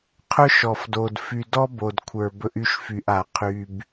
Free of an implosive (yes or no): yes